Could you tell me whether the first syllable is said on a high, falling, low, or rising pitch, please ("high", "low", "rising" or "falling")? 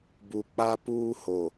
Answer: low